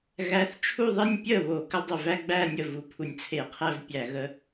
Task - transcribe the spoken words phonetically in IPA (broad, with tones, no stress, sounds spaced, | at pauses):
ɣ æ˨˦ θ t͡ʃʰ u˥˧ ðˤ e˥˧ nʲ pʲ ə˥˩ β o˧˩˧ k ə˨˦ dˤ ɪ˨˩ v æ˥˧ ɡ͡b æ˥˧ nʲ ə˥˩ v u˨˩ pʰ u˨˩ nʲ t͡sʰ e˧˩˧ qʰ æ˥˧ v pʲ æ˧˩˧ ɣ ə˨˦